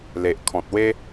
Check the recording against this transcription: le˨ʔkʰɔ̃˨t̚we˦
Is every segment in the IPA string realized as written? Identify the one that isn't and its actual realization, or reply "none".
none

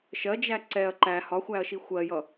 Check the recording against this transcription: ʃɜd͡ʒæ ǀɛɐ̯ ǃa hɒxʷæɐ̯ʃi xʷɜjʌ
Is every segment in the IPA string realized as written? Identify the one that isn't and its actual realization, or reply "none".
a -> æ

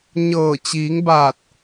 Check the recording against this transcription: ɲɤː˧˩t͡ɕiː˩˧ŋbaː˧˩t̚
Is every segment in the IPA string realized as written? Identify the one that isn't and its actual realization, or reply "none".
none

